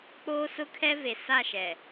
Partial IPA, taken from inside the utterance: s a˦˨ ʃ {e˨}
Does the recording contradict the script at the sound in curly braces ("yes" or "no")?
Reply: yes